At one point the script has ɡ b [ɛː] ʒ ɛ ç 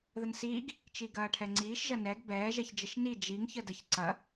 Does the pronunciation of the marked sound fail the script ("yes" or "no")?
no